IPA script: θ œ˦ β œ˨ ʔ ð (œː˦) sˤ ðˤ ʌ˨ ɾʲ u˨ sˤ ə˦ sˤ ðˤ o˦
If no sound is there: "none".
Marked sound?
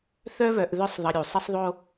œ˦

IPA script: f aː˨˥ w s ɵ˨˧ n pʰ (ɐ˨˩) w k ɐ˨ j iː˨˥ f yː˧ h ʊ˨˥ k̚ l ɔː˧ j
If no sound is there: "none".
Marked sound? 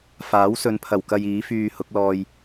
ɐ˨˩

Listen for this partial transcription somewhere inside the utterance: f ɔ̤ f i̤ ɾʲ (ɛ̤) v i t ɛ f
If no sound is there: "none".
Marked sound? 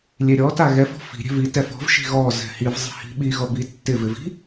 ɛ̤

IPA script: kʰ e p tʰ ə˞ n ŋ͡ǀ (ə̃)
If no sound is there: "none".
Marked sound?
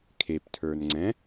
ɛ̃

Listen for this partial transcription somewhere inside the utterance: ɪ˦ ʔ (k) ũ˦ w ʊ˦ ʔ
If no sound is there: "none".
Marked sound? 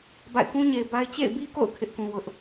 k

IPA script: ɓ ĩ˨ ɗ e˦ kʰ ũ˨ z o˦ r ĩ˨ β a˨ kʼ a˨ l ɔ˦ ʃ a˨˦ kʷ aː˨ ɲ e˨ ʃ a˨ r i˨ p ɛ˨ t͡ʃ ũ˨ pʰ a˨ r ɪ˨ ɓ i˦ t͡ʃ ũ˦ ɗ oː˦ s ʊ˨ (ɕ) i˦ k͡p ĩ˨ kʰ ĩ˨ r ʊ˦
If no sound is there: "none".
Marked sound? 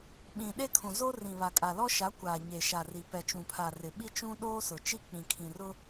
t͡ʃ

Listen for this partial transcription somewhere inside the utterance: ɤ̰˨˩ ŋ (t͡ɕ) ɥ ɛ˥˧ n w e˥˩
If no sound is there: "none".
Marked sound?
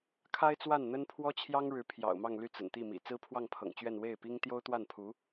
t͡ɕ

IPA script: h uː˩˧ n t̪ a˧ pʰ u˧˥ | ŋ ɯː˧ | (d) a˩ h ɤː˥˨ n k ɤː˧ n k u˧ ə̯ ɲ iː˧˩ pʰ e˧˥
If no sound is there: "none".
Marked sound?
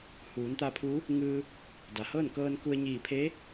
d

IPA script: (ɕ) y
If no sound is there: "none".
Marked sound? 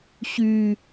ɕ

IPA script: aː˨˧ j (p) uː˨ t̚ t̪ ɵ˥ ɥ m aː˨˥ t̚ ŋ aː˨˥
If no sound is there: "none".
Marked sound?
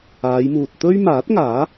m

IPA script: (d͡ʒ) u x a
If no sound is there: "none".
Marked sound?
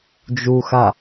d͡ʒ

